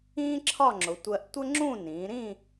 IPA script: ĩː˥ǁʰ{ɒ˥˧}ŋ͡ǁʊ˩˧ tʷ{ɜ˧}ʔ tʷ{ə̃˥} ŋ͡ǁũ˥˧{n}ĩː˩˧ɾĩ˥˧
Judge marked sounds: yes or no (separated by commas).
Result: yes, yes, no, yes